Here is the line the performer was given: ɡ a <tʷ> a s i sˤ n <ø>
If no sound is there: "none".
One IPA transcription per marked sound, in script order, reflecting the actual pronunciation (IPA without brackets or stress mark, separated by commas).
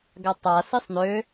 tˤ, ø